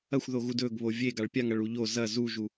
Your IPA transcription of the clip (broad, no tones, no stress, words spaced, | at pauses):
ɐxʷðoɣu dɵɡ βovʲe ɡaɭpʲaŋ ɐɭuʎo zɐ zuʒu